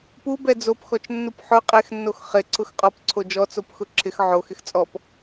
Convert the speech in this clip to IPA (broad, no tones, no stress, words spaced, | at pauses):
pubɛ d͡zopxɔt͡ʃnːup ħʊ qʼexnːox χɪ ǀʰʊxqʼɔpǀʰo d͡ʒɔ t͡sopxʊǁʰɪx ʕox ɪxt͡sʼɔp